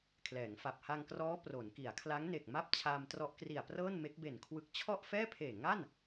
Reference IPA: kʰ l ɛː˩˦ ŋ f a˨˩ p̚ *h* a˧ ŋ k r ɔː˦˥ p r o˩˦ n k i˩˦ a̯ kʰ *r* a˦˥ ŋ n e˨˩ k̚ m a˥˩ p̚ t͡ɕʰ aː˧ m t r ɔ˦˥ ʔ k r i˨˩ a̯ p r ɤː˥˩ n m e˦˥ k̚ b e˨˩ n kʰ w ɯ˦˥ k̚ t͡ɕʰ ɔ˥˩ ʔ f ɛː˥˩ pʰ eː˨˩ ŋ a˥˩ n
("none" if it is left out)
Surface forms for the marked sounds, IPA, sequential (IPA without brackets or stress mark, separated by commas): h, l